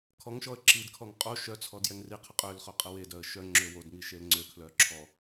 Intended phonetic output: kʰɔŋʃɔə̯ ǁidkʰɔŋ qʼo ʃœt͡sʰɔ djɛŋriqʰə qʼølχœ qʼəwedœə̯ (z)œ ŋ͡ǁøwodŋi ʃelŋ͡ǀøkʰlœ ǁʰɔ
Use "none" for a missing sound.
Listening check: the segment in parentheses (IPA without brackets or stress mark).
ʃ